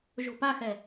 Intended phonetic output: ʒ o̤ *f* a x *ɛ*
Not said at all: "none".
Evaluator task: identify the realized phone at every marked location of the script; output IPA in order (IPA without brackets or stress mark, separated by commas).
p, ɛ